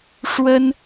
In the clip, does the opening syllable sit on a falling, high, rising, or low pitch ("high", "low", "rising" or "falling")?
high